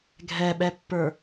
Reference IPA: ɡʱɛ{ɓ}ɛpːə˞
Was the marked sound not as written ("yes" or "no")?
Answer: no